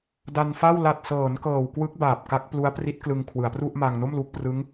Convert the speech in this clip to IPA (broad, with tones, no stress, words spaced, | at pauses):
da˧nfa˥˩w la˨˩t̚sɤː˩˦n kɤː˨˩wkwɯ˦˥k̚ baː˨˩p̚ka˦˥k̚ plu˦˥a̯pri˦˥t̚ klɯ˧ŋkʰwɯ˩˦a̯pru˥˩ʔma˧ŋ no˥˩mlu˦˥k̚prɯ˦˥ŋ